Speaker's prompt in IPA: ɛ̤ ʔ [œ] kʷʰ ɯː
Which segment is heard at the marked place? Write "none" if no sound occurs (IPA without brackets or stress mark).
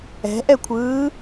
ɛ